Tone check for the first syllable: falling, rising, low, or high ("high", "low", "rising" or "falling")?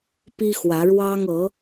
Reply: high